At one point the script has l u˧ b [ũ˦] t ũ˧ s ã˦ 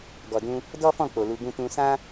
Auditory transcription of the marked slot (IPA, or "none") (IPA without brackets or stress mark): ũ˦